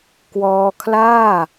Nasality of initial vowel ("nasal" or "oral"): oral